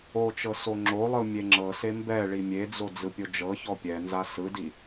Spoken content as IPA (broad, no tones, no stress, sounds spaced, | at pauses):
o t͡ʃ ɤ s o ŋ͡ǁ o lˠ ɯ mʲ e ŋ͡ǁ ɤ s e m b ɛ ɭ i mʲ e d͡z o d͡z ɯ pʲ o d͡ʒ ɤ ç ɔ pʲ ɛ n z a s ɯ d i